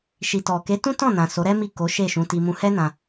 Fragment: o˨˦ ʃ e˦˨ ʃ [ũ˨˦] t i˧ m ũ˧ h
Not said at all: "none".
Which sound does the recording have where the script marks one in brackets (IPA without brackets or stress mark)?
ũ˨˦